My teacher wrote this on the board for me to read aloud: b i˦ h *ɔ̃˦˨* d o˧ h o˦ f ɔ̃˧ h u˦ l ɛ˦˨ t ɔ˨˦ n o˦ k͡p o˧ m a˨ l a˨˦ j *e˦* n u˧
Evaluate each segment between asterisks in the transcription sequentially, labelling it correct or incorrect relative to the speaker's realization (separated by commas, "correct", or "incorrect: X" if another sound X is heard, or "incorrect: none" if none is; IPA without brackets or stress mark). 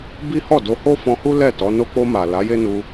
incorrect: ɔ˦˨, correct